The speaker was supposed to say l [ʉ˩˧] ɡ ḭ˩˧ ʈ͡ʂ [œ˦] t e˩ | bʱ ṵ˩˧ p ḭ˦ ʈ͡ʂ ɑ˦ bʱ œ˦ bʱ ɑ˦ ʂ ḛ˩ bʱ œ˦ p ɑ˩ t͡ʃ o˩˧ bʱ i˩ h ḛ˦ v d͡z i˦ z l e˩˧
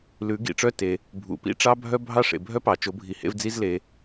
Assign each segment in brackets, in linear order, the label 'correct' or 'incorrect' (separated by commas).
correct, correct